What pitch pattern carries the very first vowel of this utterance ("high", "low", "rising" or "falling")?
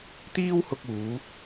high